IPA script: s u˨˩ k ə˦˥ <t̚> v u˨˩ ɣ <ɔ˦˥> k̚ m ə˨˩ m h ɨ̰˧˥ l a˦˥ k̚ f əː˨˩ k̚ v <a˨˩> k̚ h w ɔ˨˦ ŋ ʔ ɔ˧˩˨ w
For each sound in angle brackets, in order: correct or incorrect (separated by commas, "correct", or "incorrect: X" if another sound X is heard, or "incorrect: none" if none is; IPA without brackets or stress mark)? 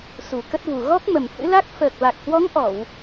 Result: correct, correct, correct